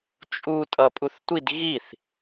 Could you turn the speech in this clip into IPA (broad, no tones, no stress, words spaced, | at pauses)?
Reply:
t͡ʃʼu tʼʌpʼuθtʷid ɣiθ